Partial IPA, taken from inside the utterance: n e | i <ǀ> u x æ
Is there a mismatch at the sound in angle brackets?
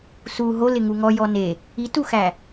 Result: yes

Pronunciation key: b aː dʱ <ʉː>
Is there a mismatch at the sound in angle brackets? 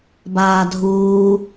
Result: yes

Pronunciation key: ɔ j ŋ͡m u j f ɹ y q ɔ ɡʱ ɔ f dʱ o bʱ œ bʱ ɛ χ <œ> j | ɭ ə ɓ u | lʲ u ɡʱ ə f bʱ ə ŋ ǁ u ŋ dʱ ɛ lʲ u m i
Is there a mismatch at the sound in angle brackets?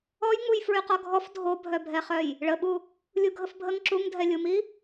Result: no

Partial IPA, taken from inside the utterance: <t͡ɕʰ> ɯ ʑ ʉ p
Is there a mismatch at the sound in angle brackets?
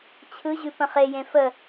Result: no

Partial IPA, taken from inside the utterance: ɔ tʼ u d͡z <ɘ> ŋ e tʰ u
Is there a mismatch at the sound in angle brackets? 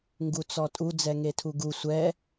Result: yes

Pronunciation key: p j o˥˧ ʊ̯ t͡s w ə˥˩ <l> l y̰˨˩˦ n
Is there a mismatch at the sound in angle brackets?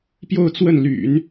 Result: yes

